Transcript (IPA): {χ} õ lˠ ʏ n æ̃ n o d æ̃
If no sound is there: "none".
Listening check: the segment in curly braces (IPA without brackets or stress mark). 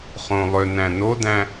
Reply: χ